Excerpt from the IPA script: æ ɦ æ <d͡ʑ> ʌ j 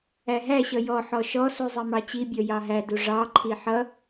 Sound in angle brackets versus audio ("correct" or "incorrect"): incorrect